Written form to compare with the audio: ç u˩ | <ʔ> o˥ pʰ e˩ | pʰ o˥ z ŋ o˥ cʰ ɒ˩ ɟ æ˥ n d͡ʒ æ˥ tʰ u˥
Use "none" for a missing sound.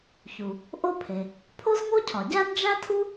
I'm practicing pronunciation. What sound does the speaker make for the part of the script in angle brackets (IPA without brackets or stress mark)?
ʔ